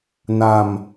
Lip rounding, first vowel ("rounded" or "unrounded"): unrounded